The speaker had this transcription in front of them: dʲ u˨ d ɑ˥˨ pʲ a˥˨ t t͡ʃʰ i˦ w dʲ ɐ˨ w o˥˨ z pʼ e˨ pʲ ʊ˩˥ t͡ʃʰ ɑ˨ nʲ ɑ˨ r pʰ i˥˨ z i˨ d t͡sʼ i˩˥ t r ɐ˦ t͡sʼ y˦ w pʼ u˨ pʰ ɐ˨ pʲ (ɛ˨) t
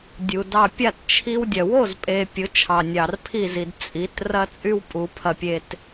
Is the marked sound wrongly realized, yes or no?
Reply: yes